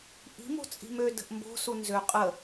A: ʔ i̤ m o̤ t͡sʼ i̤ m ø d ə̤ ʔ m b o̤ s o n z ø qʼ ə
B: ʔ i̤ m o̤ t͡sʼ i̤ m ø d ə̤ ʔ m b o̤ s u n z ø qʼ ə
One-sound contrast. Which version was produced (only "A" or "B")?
B